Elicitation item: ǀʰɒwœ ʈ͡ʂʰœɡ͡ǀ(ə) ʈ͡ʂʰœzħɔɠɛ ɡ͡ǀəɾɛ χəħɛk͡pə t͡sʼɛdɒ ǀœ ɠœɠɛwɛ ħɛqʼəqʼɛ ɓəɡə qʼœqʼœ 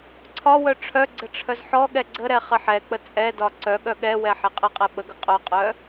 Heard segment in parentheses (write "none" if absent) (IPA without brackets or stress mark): ə